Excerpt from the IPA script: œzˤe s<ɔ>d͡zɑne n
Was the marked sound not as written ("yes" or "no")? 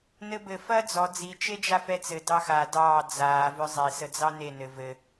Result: yes